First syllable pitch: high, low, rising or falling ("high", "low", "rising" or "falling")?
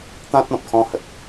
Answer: high